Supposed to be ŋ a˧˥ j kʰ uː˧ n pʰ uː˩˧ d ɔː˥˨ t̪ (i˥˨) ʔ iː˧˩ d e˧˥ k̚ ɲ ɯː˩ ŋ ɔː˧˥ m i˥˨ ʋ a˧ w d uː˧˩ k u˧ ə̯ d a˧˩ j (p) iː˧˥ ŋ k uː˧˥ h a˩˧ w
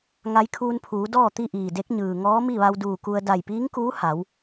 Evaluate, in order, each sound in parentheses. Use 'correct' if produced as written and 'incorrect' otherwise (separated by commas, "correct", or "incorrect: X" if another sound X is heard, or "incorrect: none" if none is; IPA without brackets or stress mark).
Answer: correct, correct